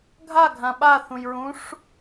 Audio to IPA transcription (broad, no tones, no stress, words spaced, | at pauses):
ɡʱaɡʱã ɓaθũjɹũʂ